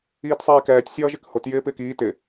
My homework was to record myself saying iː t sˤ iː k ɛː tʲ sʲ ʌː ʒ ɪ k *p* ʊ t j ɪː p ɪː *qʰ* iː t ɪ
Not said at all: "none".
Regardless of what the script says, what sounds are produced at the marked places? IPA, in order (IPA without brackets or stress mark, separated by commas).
h, k